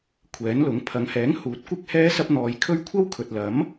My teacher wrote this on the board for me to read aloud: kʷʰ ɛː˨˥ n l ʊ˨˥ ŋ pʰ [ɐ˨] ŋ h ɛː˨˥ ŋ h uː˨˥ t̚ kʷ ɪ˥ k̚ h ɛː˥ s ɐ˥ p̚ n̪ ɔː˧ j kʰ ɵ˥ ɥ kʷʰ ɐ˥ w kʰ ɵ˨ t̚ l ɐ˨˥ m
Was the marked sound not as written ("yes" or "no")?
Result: yes